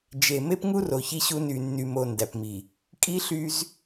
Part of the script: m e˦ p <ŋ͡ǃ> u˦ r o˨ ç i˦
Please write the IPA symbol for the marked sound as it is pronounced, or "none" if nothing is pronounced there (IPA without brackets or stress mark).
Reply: ŋ